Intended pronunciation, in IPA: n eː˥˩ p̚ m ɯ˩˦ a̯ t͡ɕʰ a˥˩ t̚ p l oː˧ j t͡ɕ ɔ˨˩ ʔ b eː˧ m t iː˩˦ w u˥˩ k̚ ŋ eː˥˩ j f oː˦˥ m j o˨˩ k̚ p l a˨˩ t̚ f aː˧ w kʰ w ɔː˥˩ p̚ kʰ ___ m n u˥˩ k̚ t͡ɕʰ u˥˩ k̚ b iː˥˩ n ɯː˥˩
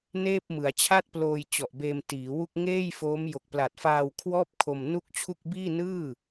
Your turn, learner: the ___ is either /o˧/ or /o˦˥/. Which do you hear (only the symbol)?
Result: o˧